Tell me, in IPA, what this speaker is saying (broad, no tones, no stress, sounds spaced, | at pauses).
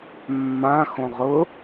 mː ã x õ ʁ ʊ